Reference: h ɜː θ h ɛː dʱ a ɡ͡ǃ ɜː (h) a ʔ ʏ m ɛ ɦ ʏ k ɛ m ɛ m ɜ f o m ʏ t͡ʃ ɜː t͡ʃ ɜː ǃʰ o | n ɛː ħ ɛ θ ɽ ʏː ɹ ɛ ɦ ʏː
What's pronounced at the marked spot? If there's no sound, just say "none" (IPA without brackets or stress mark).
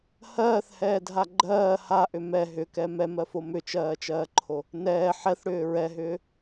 h